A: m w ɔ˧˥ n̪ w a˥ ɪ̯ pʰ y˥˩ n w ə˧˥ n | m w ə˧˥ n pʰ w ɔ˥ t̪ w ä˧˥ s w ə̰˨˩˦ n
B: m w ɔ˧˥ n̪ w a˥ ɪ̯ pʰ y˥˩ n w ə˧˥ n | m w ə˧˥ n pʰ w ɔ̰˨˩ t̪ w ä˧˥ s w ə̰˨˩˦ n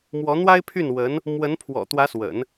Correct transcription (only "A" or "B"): B